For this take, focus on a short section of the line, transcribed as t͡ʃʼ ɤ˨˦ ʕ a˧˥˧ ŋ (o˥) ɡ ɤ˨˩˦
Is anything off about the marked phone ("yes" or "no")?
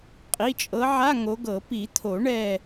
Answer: yes